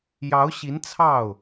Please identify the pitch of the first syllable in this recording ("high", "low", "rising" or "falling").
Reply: rising